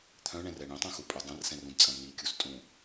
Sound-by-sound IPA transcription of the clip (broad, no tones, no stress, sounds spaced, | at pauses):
t̪ʰ œ̃ ɳ ɛ̃ r ɛ ɳ ĩ tˤ ũ x u pʼ œ dˤ ɐ̃ r s ɛ̃ r ũ d t͡sʼ ɐ̃ n̪ i kʲ u s tʼ ũ